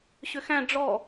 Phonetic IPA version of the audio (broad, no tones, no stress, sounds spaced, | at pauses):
ɕ ʏ x æ̃ ɖ͡ʐ ɔ